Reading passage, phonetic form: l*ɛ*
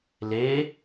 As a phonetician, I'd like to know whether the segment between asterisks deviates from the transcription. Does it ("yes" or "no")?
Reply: yes